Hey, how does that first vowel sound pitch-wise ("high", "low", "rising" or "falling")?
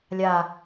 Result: low